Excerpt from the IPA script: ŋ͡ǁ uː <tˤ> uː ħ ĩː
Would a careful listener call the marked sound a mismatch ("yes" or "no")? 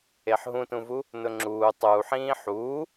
no